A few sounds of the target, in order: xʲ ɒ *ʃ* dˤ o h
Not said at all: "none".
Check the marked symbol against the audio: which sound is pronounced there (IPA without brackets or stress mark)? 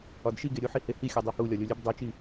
none